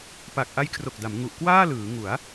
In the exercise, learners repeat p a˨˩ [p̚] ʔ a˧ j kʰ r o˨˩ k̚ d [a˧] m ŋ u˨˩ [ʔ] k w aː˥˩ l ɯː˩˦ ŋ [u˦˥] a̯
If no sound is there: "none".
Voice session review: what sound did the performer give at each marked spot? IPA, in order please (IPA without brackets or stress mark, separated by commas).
k̚, a˩˦, ʔ, u˩˦